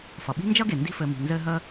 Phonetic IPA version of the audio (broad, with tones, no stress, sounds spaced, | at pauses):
f ʌ˩ ɓ i̤˥ n d͡ʒ ʌ˥ ɡ e˩ n d i̤˦ f ɘ˨ m i̤˩ n z ɘ˦ ɦ ə˦